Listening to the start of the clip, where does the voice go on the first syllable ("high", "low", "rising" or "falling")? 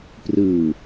low